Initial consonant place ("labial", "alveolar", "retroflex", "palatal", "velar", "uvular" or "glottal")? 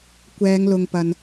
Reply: velar